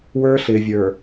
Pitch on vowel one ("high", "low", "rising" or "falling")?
high